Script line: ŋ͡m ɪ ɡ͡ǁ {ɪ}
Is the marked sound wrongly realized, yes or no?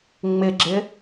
no